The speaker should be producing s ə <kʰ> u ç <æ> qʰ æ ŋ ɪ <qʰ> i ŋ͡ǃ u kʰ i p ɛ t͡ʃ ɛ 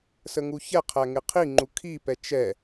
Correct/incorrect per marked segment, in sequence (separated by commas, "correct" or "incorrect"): incorrect, incorrect, correct